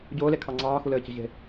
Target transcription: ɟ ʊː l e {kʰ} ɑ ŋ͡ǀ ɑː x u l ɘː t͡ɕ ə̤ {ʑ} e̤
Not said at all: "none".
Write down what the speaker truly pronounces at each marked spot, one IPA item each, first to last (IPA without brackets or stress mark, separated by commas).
kʰ, ʑ